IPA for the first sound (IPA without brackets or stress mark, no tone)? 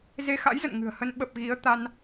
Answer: z